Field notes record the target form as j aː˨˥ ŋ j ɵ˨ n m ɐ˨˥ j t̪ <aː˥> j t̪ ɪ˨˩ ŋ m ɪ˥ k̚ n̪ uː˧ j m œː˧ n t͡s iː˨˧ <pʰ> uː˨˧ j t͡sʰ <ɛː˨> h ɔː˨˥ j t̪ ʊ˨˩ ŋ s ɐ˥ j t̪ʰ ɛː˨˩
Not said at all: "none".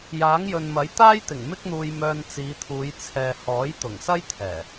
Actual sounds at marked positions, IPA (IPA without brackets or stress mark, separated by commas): aː˥, t̪ʰ, ɛː˨